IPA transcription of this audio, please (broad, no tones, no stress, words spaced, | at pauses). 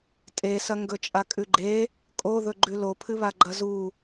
tʼesɐ ŋɡɵt͡ʃʼakʼʉɡ͡ǃe | kʼoðɵ ɡ͡ǃʉlopʰɨβa ɡ͡ǃɐzu